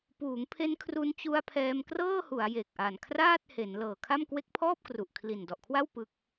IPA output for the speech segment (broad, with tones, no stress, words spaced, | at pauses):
puː˩˦ŋpʰe˦˥nkʰru˧n t͡ɕu˦˥a̯pʰɛː˧mkrɤː˥˩hu˩˦a̯ je˨˩k̚ʔa˨˩nkʰraː˥˩t̚ he˩˦nlɤː˨˩kʰa˥˩m kwe˦˥k̚pʰɔː˥˩p̚kru˨˩ʔ kʰli˨˩ndɔ˨˩ʔkʰwa˥˩w pɯ˦˥k̚